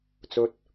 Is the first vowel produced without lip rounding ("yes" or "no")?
no